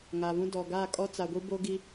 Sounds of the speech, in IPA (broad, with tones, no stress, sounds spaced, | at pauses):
ŋ a˨ β ũ˦ d ɔ˨ ɡ a˦˨ kʼ ɔ˦ t͡s a˨ ɡʷ i˦ b o˦ ɡ i˦